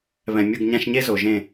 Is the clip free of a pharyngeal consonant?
yes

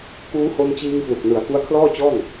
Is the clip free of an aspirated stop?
no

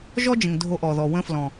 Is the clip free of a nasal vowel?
no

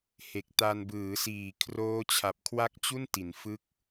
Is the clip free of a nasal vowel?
yes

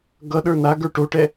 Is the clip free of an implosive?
no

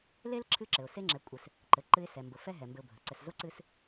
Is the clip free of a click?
no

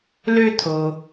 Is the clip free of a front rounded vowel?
no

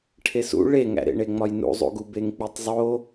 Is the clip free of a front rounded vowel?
yes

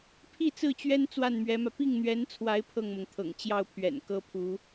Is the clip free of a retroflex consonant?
yes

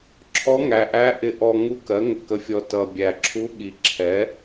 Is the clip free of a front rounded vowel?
yes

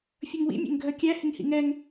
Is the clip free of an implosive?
yes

